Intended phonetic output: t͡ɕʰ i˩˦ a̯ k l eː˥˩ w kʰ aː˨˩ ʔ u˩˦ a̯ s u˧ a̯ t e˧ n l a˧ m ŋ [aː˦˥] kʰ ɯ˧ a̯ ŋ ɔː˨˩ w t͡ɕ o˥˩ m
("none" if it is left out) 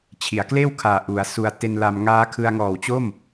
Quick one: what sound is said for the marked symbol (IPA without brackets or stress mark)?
aː˦˥